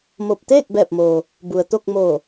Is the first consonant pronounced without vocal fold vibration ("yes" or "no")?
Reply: no